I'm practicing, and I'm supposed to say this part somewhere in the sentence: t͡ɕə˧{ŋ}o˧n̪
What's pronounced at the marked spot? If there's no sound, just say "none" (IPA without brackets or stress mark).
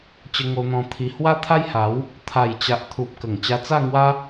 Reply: ŋ